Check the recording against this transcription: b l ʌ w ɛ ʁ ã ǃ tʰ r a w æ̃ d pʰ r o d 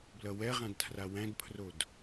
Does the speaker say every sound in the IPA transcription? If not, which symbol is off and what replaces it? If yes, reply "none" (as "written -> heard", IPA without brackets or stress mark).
ǃ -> d